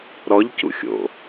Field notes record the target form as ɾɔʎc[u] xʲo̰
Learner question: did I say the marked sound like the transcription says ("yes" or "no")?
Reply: no